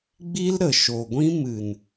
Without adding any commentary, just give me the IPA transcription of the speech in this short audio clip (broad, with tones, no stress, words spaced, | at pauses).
ɡ͡bi˦l ɾə˨ʃo˨ɡʷĩ˦ mɨ˨n